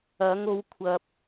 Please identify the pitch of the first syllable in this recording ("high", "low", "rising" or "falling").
rising